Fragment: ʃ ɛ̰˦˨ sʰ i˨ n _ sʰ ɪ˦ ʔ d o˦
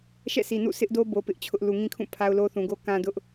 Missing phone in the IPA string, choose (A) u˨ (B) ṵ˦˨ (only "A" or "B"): B